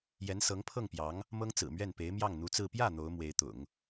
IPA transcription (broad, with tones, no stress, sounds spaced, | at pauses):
j ɛ˧˥ n s ɤ˧˥ ŋ pʰ ɤ˥˩ ŋ p j ɑ˧˥ ŋ | m ɤ˥ ŋ t͡s ɹ̩˨˩ m ɥ ɛ˥˩ n p e˧˥ ɪ̯ m j ɑ˥˩ ŋ n̪ u˧˥ t͡s ɹ̩˥˧ p j ä˥˩ n̪ o˧˥ ʊ̯ m w e˧˥ ɪ̯ t̪ ʊ̰˨˩˦ ŋ